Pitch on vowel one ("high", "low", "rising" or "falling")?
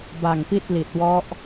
low